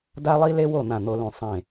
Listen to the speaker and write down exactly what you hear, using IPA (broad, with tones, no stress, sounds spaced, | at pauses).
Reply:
d a˥ lˠ i˥ l e˥ w o˥˨ n̪ ã˥˨ n̪ o˥ l ũ˥˨ sˤ ẽ˥˨